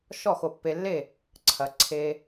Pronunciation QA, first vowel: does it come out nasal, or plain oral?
oral